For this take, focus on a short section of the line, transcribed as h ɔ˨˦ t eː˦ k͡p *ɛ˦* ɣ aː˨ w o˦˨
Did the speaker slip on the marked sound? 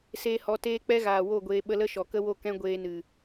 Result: no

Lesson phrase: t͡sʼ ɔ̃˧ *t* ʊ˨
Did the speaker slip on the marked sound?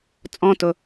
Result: no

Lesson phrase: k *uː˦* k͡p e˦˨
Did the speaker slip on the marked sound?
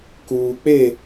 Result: yes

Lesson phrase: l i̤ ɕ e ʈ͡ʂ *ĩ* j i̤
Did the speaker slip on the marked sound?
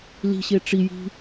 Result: yes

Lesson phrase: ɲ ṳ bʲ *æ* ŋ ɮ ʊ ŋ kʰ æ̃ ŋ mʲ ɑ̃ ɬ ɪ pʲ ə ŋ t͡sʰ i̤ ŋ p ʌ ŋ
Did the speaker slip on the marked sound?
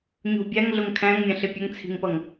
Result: no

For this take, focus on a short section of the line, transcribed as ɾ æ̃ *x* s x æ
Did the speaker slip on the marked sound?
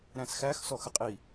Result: yes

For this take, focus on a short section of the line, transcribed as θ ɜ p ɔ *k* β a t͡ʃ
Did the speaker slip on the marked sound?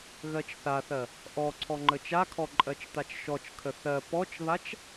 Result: yes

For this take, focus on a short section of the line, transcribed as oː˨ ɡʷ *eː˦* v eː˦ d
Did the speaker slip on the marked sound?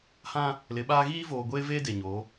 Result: no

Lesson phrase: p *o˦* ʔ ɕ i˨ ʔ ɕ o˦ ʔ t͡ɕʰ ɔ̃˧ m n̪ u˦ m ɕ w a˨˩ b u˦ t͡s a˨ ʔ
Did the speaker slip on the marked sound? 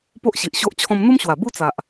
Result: no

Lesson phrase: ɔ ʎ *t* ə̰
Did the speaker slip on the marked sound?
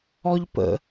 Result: yes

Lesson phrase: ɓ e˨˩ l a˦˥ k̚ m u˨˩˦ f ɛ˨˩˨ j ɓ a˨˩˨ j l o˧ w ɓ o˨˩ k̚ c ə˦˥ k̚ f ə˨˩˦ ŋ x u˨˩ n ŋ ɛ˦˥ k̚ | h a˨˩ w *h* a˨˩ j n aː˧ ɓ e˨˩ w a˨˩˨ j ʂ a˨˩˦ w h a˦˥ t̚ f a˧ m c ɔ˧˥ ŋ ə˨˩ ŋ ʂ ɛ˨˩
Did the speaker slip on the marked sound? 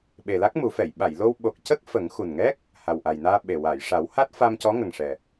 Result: yes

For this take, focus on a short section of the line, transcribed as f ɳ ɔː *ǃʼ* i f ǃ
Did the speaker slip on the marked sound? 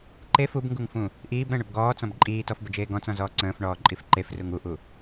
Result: no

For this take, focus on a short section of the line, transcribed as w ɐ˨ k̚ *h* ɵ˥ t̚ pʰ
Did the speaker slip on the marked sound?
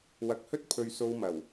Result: no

